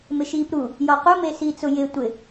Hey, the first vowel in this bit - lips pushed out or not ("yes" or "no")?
no